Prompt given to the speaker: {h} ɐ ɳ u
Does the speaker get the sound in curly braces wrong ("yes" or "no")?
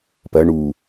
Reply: yes